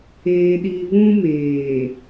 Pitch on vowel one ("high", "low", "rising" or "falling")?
low